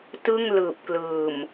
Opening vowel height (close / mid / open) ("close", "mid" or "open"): close